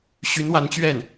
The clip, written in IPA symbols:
ɕy˧˥nwa˧˥nt͡ɕɥɛ˥˩n

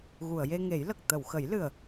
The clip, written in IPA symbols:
ɣu˨˩˨ə̯je˧ŋe˨˩˦jlə˨˩k̚ t̪ə˨˩˨wxə˨˩˦jlɨ˨˩ə̯

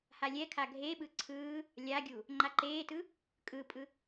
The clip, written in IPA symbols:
halʲɛkʰa ɡʱeɓɯ ǀʰɯː | lʲaɡʲu | ŋ͡ǃaǃeːtɯ | kʼɯpʼɯ

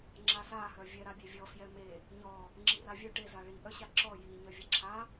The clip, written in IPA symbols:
ŋ͡ǁasa hœvʲɛ ɾabʲevʲɔ fjɛme | ɲɔ | ŋ͡ǁiravʲœ ʈe zaɭi ʔœɕaǁɔ ji ɲœvʲɛǁʰa

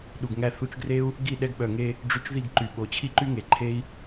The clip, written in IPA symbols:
ɗu˨ɡŋæ˧θu˧t͡ʃɡre˦u̯ | ɡi˦˨ɗɛ˧ɡɓœ˨ ŋe˧ | ɖ͡ʐy˧t͡ʃði˦˨ɡǃy˨ ɓo˨t͡ɕʰi˦ǃy˦ŋe˨ ǃʰe˦i̯

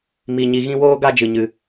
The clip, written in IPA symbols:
mi˧ɲi˧ ɣĩ˧woː˧ɡa˧ d͡ʒɨ˧ɲɨ˧

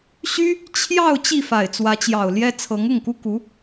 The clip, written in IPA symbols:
ɕy˥ | t͡ɕʰjɑ˥˧ʊ̯ t͡ɕi˥˩fa˨˩ɪ̯ t͡swä˧˥t͡ɕjɑ˨˩ʊ̯ljɛ˥ t͡sʰɤ˧˥ŋʊ˥˩ŋku˥ku˧˥

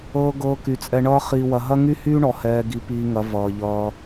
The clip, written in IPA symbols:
ɤː˧ ɡɤː˧ky˨t͡sʼɛ˧ ɳʌː˦ χiː˧wɐ˧ ɦɐ˦ŋy˦hyː˦ɳɔ˨ hɛː˧ɡi˧ piː˧ŋɐ˨˦ vʌː˧ʎʌː˦

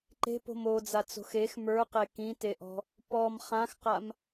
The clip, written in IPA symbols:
ǃe̤po̤m od͡zat͡so̤x ex mə˞qe kĩteʔɔ̤ | pɔm χãxqam

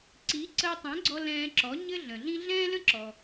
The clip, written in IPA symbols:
ǀi˩˥ ǀəː˧tˤɛ̃˩˥ɡ͡ǀɔ˧ lɛ̃ː˧ǁɔ˩˥ ɲɘ˥ɮə̃˩ɮĩ˥ ɮɛ̃ː˥lə̃˥ǁɔ˩

